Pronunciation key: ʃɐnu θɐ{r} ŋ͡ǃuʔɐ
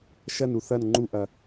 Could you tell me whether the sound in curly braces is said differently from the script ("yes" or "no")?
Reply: yes